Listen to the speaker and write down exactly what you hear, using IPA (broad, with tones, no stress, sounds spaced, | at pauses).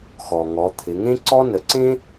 x ɔ˩ ŋ ɔ˩˧ t̪ʰ ɪ˩˧ ŋ ẽ˥ ǀ ɔ˥ n ə˩˧ ǀ ẽ˥